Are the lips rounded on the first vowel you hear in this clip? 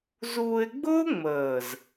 yes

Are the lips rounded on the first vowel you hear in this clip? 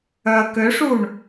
yes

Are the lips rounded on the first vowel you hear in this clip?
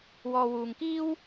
yes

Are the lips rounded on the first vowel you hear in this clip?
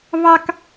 no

